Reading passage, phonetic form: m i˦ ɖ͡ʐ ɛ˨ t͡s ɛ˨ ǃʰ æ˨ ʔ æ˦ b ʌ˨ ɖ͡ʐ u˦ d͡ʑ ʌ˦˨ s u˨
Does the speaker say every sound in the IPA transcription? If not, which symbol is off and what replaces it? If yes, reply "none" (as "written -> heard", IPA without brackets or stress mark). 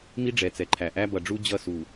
none